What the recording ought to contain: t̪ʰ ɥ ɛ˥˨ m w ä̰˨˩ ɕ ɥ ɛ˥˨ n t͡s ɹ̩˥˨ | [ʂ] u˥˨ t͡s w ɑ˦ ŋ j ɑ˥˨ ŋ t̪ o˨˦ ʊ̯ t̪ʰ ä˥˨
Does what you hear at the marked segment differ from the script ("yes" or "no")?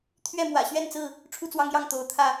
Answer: yes